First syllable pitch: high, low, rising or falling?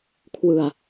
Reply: low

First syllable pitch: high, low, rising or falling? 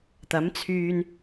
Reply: rising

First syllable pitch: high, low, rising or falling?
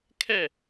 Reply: falling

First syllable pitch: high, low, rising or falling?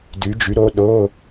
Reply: rising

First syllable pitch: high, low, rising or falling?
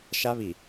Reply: high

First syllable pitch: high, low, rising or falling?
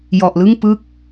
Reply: low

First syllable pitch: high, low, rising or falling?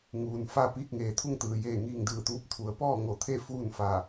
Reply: low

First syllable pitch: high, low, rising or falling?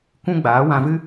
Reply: high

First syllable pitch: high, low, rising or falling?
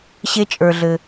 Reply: high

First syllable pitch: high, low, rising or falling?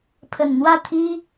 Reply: low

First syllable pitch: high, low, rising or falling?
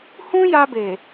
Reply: high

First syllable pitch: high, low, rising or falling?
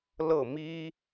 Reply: falling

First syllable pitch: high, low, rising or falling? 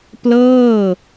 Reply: falling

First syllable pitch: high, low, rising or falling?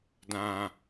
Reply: low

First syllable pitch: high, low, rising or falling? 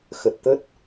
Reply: low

